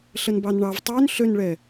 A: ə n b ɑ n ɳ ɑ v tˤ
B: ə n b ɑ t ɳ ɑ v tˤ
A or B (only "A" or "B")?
A